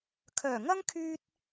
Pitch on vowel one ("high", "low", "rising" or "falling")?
low